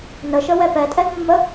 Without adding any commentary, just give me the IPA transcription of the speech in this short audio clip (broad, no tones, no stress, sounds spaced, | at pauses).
n ə ʃ ə w ɛ p ɛ tʼ ɛ ɡ mː ə